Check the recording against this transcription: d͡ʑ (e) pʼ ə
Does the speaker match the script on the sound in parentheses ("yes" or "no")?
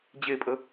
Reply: yes